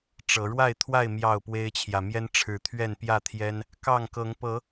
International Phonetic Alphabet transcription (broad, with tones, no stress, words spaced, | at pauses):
ʈ͡ʂɤ˨˦ ɻwa˥˨ɪ̯t̪ʰwa˥˨ɪ̯ mjɑ˥˨ʊ̯pwe˦ɪ̯t͡ɕʰjä˨ mjɛ˦n ʈ͡ʂʰɻ̩˨˦t̪ʰɥɛ˥˨n pjä˥˨t̪ʰjɛ˦n | kɑ˥˨ŋkɤ˨˦ŋ pɤ˨˦